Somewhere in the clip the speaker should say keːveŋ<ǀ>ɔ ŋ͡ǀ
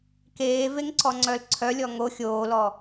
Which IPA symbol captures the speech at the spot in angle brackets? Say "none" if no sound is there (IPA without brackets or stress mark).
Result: ǀ